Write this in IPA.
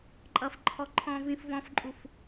ǃʼ ʌ f ǃʰ ɔ ǃʰ ɔ̃ v ĩ f v ɔ̃ f ǃʼ u f

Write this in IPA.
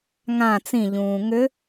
ŋ ã t͡s ĩ ʎ ũː ŋ ʏ

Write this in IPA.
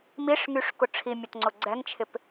m i ʂ ŋ y ʂ k ʊ ʈ͡ʂʰ i mʲ o t ŋ͡ǀ ʊ ɡ͡ǀ ɛ ŋ t͡ʃʰ ɪ p

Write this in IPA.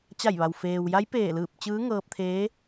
t͡ɕ a˧˩ j ʋ a˩ w f eː˩ w j a˧˥ j p eː˧˩ l ɯː˧˩ p̚ t͡ɕ ɯː˧˥ ŋ ɤː˧ p̚ t̪ʰ eː˧˥

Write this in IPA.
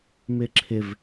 m ɪ ǁʰ ɪ v

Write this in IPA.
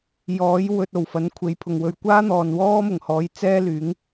j ɔː˨˥ j w ɵ˨ t̚ o˨˩ w f ɐ˨˥ n kʷʰ e˨˧ j pʰ ʊ˨ ŋ w ɵ˧ ɥ kʷ aː˥ n̪ ɔː˨ n w ɔː˥ m ʊ˨˩ ŋ h ɔː˨˧ j t͡s ɛː˥ l yː˨˥ ŋ

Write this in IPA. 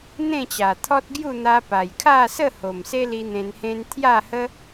n̪ ẽ˥˧ t͡ɕ a˨˩ t̪ʰ ɔ˦ t̚ ɡ j u˥˧ n̪ a˧ p a˨˩ j kʰ a˥˧ s ə˥˧ h o˨˩ m s e˦ l i˧ n̪ ẽ˧ n h ẽ˦ n t̪ʰ j a˥˧ h ə˦

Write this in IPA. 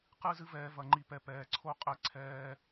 q ɨ˦ z ɨ˦ v ɛː˧ v ɐ˧ ŋ͡ǃ i˧ p ɛ˧ p ɛː˨ ǀʰ o˦ qʼ ɛ˦ ǀʰ ɛː˦

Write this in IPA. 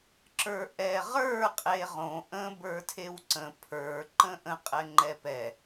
ǁ ə˞ ʔ ɛ ʁ ə˞ qʼ e ʁ õ ʔ ə̃ b ə˞ tʰ e w ǀ ə̃ pʰ ə˞ ǃ ə̃ ʔ ə̃ qʼ ɛ ŋ͡ǃ ɛ p ɛ

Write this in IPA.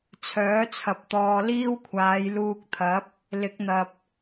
t͡sʰ œː˨˥ t͡sʰ ɐ˨ p̚ t̪ ɔː˧ l iː˥ w kʷʰ aː˨˧ j l uː˧ k̚ t̪ʰ ɐ˨˥ p̚ | l ɪ˨˥ k̚ n̪ ɐ˨ p̚

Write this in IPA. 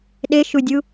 ɗ e ʃ u dʲ u

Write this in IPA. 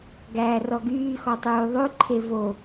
ɡ æː r ɔ ɡ yː x ɔ tˤ yː ðˤ ʉ ǃʰ e v o

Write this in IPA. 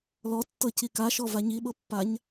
l ɔ tː ɤ c i k a ʃ ɔ v a ɲ i ɓ ɤ pː a ɲ

